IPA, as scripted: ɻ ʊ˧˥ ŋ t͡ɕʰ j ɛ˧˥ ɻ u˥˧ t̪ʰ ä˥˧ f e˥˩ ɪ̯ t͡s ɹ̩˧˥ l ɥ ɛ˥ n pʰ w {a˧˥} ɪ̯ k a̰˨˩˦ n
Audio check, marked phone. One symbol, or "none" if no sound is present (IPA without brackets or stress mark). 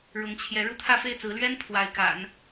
a˧˥